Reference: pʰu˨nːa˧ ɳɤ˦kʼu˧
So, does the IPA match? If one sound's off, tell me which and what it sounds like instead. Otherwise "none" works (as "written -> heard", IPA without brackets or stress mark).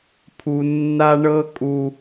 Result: none